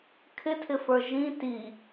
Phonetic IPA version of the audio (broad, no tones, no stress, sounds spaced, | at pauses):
kʰ ɪ tʰ ɪ f ə˞ ʒ ĩ t i